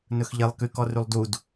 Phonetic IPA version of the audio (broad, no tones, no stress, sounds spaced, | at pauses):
n ɵ x ʎ e lˠ k y k ɔ r y lˠ d u d